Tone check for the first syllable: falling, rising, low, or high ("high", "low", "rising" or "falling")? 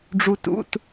high